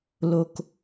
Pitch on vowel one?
low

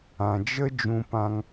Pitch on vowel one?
low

